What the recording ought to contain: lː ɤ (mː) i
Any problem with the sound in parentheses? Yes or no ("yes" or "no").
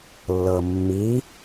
no